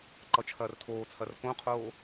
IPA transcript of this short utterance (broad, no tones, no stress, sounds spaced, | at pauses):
ǃ ʌ t͡ʃʰ ɐː r tʰ oː t͡sʰ ɐ r k õ qʰ oː